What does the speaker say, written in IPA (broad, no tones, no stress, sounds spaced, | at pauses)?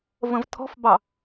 v ə̃ v tʰ ɔ̤ f b ɑ